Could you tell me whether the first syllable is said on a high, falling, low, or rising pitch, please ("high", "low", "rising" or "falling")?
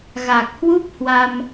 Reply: low